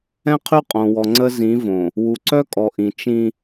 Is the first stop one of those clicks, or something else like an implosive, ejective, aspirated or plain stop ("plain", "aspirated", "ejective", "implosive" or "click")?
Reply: aspirated